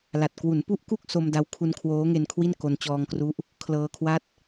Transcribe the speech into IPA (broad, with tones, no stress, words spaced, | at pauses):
la˨˩t̚ kwu˩˦npu˦˥ʔku˥˩k̚ so˧mda˧w kʰu˧nkʰwoː˦˥ŋe˧n kʰwi˥˩n ko˧n t͡ɕɔː˧ŋkru˦˥ʔ | kʰlɤː˧kʰwa˥˩t̚